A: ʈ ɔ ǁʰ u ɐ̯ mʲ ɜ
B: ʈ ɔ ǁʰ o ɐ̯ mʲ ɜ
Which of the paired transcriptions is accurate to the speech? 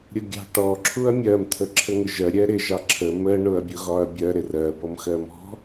A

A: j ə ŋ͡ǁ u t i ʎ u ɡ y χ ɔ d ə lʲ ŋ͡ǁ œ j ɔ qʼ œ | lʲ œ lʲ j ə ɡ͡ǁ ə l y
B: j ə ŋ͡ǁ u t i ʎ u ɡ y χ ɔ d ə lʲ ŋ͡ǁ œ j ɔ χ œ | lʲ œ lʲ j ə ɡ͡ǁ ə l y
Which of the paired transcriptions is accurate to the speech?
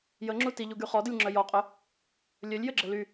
A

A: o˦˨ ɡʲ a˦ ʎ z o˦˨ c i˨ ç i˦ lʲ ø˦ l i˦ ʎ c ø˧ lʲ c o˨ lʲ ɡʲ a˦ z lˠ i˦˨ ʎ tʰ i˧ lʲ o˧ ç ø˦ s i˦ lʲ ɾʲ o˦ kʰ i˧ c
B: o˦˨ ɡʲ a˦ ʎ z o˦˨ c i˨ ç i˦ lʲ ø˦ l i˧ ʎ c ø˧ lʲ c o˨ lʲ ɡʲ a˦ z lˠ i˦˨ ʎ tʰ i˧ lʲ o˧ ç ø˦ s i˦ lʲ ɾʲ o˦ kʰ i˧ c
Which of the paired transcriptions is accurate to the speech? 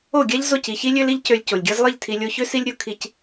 A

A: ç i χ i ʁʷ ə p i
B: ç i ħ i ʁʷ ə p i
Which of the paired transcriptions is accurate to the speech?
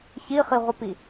A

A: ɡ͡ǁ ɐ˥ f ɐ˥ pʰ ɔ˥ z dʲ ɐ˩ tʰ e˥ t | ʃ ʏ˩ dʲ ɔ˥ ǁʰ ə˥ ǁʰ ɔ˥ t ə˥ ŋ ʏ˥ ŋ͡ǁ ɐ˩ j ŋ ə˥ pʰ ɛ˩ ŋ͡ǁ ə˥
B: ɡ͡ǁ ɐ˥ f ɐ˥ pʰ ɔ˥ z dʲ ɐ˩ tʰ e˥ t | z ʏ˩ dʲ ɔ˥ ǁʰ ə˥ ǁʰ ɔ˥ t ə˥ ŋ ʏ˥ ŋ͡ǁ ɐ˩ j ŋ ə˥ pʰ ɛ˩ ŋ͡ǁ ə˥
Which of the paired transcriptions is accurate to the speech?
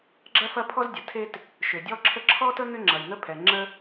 A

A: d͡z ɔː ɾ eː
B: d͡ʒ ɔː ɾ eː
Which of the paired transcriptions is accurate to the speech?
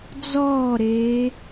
A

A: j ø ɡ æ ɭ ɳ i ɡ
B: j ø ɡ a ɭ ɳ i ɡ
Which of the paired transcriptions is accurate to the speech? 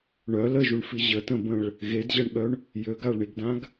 B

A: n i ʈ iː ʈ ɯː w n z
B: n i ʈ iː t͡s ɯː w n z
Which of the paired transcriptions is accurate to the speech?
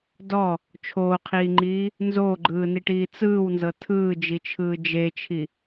B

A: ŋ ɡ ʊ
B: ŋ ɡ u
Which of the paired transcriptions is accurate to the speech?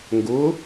A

